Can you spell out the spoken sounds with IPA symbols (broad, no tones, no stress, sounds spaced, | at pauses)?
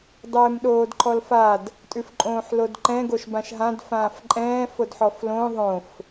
dˤ ɛː m ɗ oː d ǃʰ ɔ l f a d | tʼ ʉ f ǃʼ õː ħ l o d ǃ ɛ̃ ɡ o ʃ b ã ʃ ɦ ã d f ãː f ǃʼ ɛ̃ː f o d ħ ɔ f l õ ðˤ õ f